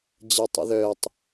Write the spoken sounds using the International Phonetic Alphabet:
d͡ʑɐtˤə̰ðœtˤ

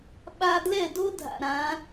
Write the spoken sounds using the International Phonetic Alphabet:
ɓa˧dlɛ˥˩do˥dʱa̰˩ ɾã˩˥

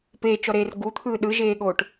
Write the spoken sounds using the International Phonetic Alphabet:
peːt͡ʃɔɾeːr ɡut̪ʰɯː ɗɯʒeːɠoːʈ

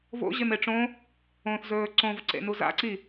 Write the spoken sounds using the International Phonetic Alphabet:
vo̰ ʑemeʈ͡ʂõ | õθzɵː ǀõvǀḛnu za̰ǀi

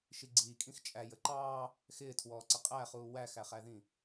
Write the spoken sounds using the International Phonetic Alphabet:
ʃiɡ͡ǀiːkʼĩx t͡ʃʼæj əǃɑː | xɪːtʰwɔːǀɪ qʼæχuː wæxæχæðĩ

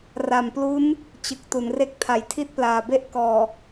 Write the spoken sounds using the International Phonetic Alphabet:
ra˨˩mplu˦˥n | t͡ɕɯ˨˩k̚ tu˩˦nre˦˥k̚ tʰa˨˩j tʰi˥˩t̚plaː˨˩be˥˩ʔ kɔː˨˩

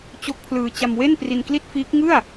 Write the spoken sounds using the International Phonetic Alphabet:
t͡ɕo˦˥k̚pʰlɯː˧ t͡ɕa˧mwe˥˩n pri˧nkli˥˩t̚fiː˦˥k̚ ŋɯ˥˩a̯

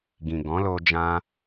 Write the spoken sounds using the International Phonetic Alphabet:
ɡĩ˨ɡɔ̃˨˦lo˧ d͡ʒã˧

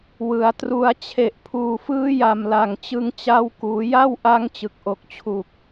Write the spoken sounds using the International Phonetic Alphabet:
wɯ˩˦a̯tru˦˥a̯ t͡ɕʰe˨˩ʔpʰuː˨˩fɯː˦˥ja˨˩m la˨˩ŋt͡ɕɯ˧ŋt͡ɕa˦˥wkuː˩˦ ja˥˩wʔa˦˥ŋ t͡ɕɯ˨˩k̚ʔo˨˩k̚t͡ɕʰu˨˩k̚

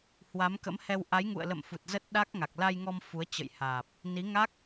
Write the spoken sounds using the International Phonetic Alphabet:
hwa˨˦mkə̰˧˥mhɛ˧w ʔa˨˦jŋṵ˧˨ə̯lə̰˧˨m fu˨˩t̚zə˦˥t̚ɗa˦˥k̚ŋa˨˩k̚ la˧jŋɔ˧m fu˨˦ə̯t͡ɕə̰˧˨jhaː˨˩p̚ | ni˨˦ŋa˦˥k̚

